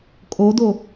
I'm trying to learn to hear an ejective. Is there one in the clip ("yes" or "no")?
yes